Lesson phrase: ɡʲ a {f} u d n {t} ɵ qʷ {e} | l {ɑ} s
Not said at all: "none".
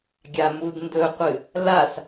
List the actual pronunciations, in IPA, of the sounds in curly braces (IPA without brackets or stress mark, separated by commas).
m, d, ɨ, a